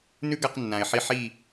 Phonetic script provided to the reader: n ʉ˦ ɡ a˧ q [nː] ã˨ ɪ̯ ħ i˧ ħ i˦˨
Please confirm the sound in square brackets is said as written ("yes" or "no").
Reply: yes